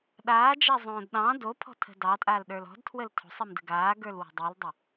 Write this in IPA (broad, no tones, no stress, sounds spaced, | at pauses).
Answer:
ɗ aː d͡ʒ a zˤ õː d ɗ ɑ̃ d o pʰ ɔ̤ tʰ ə̤ d ɑ tʼ aː l ɗ ə˞ l ɔ̤ d tʰ w ə l tʰ o̤ sˤ i m d ə̤ ɡ aː ɡ ə˞ l w ə̤ dˤ i l dˤ ə